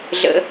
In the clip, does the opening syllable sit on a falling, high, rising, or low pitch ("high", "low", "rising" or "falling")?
low